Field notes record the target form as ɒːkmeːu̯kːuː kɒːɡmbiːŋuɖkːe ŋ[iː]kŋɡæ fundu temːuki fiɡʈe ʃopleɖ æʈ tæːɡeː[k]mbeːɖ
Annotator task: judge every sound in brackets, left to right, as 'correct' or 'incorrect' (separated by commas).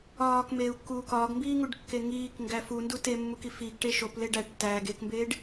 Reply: correct, correct